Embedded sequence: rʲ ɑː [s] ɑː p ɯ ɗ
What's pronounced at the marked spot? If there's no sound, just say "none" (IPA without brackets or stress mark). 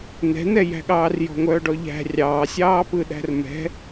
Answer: sʲ